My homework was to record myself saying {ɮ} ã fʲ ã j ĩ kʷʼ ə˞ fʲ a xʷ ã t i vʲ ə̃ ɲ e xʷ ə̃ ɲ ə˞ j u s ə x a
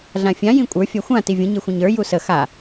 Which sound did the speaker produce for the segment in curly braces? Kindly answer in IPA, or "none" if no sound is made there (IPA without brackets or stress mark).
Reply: ɮ